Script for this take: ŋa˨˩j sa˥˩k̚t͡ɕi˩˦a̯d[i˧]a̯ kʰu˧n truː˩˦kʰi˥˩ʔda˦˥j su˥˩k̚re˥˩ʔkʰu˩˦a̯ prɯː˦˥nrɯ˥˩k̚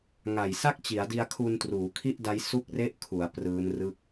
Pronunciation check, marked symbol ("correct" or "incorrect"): correct